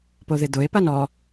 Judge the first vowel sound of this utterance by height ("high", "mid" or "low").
mid